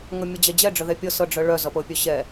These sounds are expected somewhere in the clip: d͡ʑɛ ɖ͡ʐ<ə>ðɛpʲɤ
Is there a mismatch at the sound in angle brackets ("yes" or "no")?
no